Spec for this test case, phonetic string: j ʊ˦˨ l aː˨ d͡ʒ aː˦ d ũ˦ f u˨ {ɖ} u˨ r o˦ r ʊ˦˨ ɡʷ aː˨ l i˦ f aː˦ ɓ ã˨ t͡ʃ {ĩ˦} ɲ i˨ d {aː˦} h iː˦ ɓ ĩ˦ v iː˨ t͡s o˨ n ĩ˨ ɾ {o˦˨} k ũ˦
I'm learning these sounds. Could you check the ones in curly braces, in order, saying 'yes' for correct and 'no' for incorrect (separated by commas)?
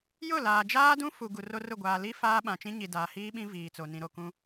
no, yes, no, yes